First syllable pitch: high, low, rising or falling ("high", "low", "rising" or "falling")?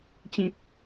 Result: low